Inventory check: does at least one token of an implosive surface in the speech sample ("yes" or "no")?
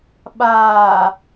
yes